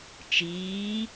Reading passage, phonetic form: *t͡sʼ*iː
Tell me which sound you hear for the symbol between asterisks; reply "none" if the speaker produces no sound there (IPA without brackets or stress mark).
t͡ʃ